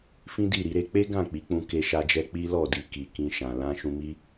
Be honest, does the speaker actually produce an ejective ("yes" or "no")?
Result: no